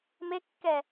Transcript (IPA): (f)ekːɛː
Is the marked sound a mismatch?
yes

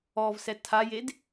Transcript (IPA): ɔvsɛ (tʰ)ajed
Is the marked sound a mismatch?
no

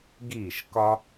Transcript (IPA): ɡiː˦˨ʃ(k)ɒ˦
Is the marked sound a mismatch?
no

